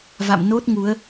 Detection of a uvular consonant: absent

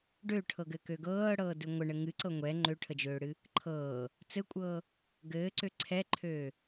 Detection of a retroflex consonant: present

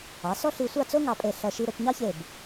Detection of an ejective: present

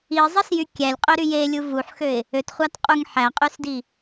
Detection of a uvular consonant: present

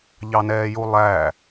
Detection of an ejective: absent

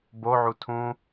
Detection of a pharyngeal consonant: present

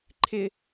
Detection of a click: present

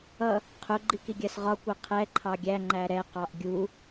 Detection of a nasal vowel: absent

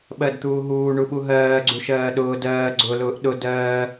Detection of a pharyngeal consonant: absent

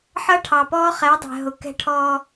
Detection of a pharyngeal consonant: present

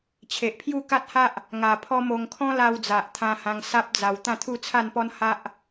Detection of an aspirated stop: present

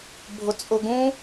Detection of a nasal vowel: present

